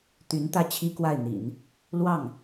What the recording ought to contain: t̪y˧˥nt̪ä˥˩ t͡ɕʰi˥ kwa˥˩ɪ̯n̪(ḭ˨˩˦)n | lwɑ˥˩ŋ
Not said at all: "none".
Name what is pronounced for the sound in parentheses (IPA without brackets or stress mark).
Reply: ḭ˨˩˦